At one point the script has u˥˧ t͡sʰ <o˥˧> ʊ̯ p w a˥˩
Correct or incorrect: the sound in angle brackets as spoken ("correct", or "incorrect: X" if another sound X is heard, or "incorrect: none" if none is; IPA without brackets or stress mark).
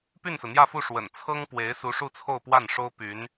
correct